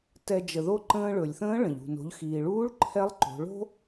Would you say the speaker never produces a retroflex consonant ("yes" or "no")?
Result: no